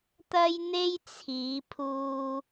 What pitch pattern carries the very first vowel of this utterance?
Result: high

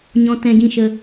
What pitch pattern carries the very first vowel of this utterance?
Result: high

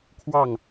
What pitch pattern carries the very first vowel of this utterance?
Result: falling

